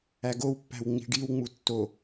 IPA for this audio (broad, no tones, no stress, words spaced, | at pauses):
æɡowpːæ̤w ŋ͡mi̤ɖiwŋ͡mu tːo